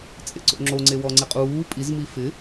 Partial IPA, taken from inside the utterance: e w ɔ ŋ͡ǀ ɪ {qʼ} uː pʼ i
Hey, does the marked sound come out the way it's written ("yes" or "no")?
yes